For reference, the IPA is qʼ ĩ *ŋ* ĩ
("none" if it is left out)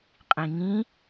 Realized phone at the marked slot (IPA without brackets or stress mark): ŋ